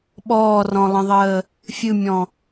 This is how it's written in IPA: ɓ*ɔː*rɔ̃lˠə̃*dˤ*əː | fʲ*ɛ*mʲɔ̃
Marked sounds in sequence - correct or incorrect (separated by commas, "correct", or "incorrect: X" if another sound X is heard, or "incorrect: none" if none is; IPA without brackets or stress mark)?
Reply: correct, incorrect: ðˤ, incorrect: ɨ